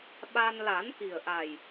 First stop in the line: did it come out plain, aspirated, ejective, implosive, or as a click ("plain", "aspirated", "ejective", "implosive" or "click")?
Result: implosive